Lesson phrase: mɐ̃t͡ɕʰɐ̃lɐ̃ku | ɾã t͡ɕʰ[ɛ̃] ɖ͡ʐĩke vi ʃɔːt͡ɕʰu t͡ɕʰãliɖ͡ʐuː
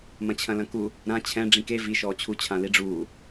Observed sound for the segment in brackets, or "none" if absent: ɛ̃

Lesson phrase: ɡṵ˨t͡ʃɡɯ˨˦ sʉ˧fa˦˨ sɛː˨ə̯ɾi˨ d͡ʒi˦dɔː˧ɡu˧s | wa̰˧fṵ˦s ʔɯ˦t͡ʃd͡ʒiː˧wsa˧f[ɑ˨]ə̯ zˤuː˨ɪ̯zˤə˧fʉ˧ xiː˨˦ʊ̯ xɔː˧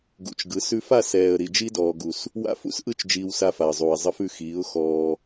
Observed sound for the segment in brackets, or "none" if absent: a˨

